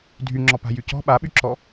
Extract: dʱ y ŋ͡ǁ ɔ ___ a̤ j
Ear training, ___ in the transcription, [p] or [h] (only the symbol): p